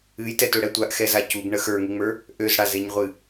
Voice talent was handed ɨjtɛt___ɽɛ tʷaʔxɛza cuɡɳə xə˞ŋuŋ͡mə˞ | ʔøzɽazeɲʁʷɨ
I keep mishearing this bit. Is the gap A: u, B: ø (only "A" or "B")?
B